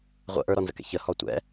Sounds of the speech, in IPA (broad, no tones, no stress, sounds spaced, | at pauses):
ʁʷ ə̰ ʔ ə˞ ɾ ɔ n z ə̰ k ɛ̰ ç ə h ɔ tʷ ɛ̰